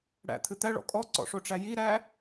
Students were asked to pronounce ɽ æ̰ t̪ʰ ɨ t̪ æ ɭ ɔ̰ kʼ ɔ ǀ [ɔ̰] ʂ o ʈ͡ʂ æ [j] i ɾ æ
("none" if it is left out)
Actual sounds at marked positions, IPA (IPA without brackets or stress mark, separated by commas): ɔ̰, j